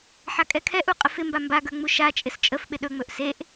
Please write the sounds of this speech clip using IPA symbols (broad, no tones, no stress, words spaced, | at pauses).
ħakʼɛkʰɛʔu qʼəfɪmba mbaɡə˞ ŋ͡muʃat͡ʃʼɪs t͡ʃʼəfɓɪ ɗɵŋ͡mɵʔ seʔ